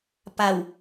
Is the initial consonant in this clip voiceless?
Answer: yes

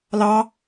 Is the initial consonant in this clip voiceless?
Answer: no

